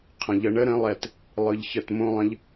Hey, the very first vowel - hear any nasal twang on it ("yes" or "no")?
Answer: yes